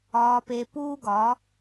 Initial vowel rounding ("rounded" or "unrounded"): rounded